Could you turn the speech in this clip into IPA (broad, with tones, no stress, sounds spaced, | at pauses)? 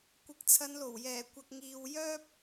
kʷ ɪ˨˥ k̚ t͡sʰ ɐ˨˧ n l o˨˩ w j ɛː˨˩ kʷ ɐ˨ k̚ ŋ iː˨ w j œː˥ p̚